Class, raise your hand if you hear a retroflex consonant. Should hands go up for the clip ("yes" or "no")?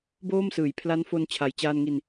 no